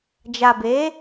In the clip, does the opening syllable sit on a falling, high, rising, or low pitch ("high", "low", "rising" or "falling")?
low